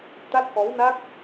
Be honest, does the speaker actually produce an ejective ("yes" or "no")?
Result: no